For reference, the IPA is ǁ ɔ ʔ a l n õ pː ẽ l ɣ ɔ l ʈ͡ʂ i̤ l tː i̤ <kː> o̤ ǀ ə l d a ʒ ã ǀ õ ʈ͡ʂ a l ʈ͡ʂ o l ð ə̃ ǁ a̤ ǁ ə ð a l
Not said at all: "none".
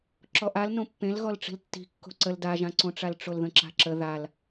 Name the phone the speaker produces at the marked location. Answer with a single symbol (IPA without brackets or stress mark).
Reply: kː